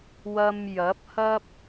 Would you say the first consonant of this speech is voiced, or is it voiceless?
voiced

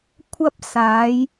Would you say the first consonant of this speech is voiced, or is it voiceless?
voiceless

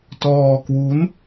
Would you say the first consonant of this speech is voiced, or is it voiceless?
voiceless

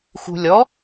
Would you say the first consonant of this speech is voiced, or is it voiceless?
voiceless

